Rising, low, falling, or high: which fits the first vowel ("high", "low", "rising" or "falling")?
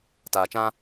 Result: low